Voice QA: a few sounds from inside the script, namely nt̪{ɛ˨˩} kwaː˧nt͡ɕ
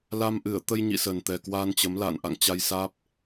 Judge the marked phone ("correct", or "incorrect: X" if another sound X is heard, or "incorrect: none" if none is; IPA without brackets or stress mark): correct